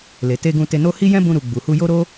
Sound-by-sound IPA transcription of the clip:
l e˨ t e˧ ɡ ũ˧ t e˧ n o˦ h i˦ j ɛ̃˦ b ũ˧ ɾ u˨ ɡ͡b u˨ h u˧ j o˦ ɾ o˦

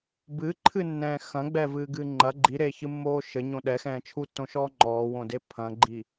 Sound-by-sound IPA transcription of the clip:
b ɨ ǃʰ ɨ nː ɛ̃ː x ɐ̃ ɡ͡b ɛ v ɨː ɡ ɨː ŋ͡ǃ ɐ ɡ͡ǃ i ɾ eː ç ɨ mː oː ʃ ɘ ɲ õ ɗ ɛ x ɛ̃ː t͡ʃʰ u tː õ ʃ ɔː ŋ͡ǃ ɔː w õ d e pʰ ɐ̃ ɡ͡ǃ i

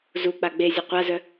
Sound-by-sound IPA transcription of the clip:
z u k͡p a ɡ͡b e zʲ ʊ qʷ a z œ

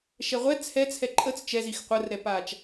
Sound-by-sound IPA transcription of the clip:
ʃ ɛ ʁʷ ɛ t͡sʰ ɛ t͡sʰ ɛ ǃʼ ə t͡s t͡ʃ ɛ z i x qʷ ə r ɾ ɛ p aː t͡ʃ

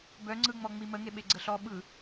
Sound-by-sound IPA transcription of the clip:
b œ ŋ͡ǀ ɯ ŋ͡m ɔ ŋ͡m i m ə ŋ e ɓ e ɡ͡ǀ ə ɬ ɔ ɓ ɯ

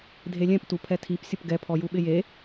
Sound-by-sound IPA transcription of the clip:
dʱ e lʲ ɛ̃ p t u pʰ ɛ tʰ i p sʲ ʊ p ɡ ɛ pʰ ɔ j u ɓ ɪ j e

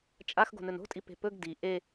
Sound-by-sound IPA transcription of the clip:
t͡ʃʼ a x ɡ o̤ n ɵ n o̤ tʼ i p e̤ p ɵ ɡ d i ʔ e

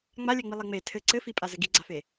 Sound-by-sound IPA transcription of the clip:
ŋ͡m a lʲ ɛ ŋ͡m i lˠ e ŋ͡m e tʰ ɘ ǀ ɘ f i pʼ a z ɘ ɡ i ɡ͡ǀ a f e

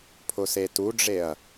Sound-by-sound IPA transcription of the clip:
pʰ ʊ s e t u ɖ͡ʐ e ɐ̯

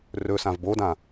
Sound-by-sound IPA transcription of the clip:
r ɵ s ã v b o d ã

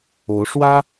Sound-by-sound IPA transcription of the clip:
o˧˥ ʊ̯ ʂ w ä˥

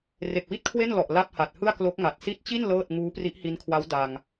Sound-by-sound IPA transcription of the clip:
r e˨˩ k̚ w i˥˩ t̚ kʰ w e˥˩ n l ɔ˨˩ ʔ l a˥˩ p̚ h a˨˩ t̚ h ɯ˥˩ a̯ k l o˦˥ k̚ ŋ a˨˩ t̚ s i˦˥ t̚ t͡ɕ i˥˩ n l ɤː˥˩ t̚ ŋ uː˦˥ p r i˦˥ ʔ h i˦˥ n kʰ w a˦˥ w d a˧ ŋ

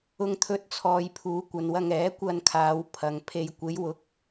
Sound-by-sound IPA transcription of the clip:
ʊ˧ ŋ t̪ʰ ɵ˧ t̚ t͡sʰ ɔː˨ j pʰ uː˨˧ kʷ ɐ˨ n w ɐ˧ ŋ ɛː˨˥ kʷ ɐ˧ n kʰ aː˨˧ w pʰ ɐ˨ ŋ pʰ e˧ j kʷ e˨˧ j w ʊ˨˥ k̚

